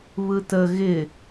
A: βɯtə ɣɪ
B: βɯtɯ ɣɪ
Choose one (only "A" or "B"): A